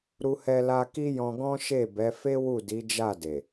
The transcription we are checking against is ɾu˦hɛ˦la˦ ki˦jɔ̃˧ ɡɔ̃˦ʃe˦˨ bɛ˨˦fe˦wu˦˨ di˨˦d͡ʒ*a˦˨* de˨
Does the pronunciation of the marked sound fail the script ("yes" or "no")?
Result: no